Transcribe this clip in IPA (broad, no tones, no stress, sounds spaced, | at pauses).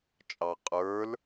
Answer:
t͡ʃʼ ɑ qʼ ə˞ l